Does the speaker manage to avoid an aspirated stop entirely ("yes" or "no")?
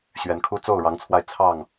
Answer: no